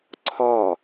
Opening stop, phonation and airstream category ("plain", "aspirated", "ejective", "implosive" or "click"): click